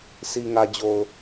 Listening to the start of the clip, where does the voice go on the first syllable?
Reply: low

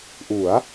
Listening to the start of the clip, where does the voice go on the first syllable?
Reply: rising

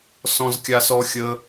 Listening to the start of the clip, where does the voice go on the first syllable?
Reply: high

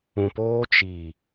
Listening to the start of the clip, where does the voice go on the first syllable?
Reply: low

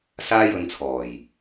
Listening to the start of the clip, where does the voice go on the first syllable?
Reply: high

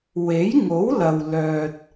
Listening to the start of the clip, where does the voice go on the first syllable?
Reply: rising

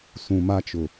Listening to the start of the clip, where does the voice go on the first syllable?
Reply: low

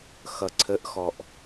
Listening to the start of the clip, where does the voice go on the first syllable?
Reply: low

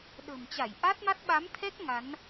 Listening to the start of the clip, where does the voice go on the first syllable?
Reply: low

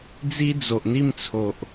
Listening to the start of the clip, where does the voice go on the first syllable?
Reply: high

